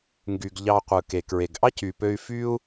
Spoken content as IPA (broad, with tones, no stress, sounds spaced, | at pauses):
ŋ ɡ y˨ ɡ ʎ ɑ˧ qʷ ɯ˨ k e˨ k ɹ e˨ ɡ ʔ ɑ˦ c y˨ p ø˧ y̯ f y˦ u̯